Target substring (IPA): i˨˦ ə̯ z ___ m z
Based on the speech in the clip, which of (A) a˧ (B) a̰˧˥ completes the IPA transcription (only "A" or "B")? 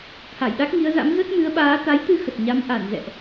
B